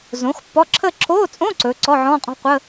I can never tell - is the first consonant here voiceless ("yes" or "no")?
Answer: no